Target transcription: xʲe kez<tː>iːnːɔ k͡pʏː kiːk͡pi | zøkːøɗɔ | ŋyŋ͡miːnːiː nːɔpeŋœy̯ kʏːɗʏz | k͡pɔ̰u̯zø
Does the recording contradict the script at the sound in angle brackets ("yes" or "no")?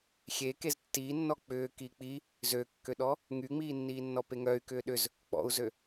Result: no